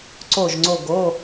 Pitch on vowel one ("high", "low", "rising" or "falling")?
falling